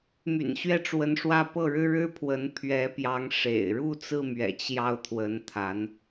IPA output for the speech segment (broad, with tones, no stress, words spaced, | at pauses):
my̰˨˩nɕɥɛ˥˩ʈ͡ʂwə˧˥nʂwä˥˧ pɤ˥˩ɻɻ̩˥ɻɻ̩˥pʰwə˧˥n pʰɥɛ˧˥pjɑ˧˥ŋ ʂḛ˨˩ɪ̯ ɻu˥˧t͡sɹ̩˥˩mɥɛ̰˨˩ t͡ɕjɑ˥˩ʊ̯t̪ʰwə˧˥n t̪ʰa˧˥n